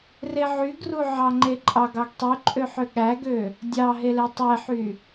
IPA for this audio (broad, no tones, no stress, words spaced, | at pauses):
reʕyɡru ʕɑŋ͡ǃeǃʼɑɡ ɑɡtˤyǃʼøħø ɠæɡø | dʲɑɦele tˤeħy